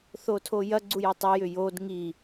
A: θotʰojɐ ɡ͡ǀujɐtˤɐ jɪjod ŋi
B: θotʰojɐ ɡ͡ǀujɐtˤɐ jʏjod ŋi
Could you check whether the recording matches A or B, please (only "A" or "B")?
B